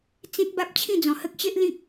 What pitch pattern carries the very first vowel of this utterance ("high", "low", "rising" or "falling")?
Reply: high